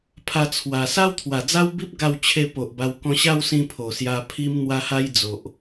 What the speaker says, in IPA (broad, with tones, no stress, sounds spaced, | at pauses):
pʰ a˧ t͡sʰ w a˨˩ s a˦ w t̪ʰ w a˨˩ d͡z a˦ w b i˦ p̚ ɡ a˥˧ w t͡ɕʰ e˥˧ p o˨ ʔ b a˧ w k ɔ̃˧ ɕ a˥˧ w s ĩ˧ pʰ o˨˩ s j a˧ pʰ i˧ m n̪ w a˧ h a˧ j d͡z o˨ ʔ